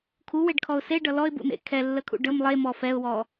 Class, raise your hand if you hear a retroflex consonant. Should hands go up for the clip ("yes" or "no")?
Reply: yes